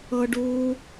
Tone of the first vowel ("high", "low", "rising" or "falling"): high